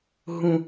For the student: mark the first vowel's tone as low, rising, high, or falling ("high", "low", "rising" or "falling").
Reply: high